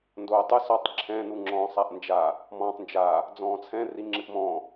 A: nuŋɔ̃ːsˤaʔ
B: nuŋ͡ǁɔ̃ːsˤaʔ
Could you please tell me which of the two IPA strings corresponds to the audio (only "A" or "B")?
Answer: B